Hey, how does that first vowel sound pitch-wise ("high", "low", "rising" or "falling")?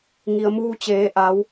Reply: low